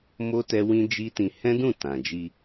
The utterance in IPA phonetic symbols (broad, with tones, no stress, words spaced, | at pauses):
mo˦ tɛ˦wĩ˦ d͡ʒi˦tĩ˧ hɛ̃˦dũ˦˨ tã˨d͡ʒi˧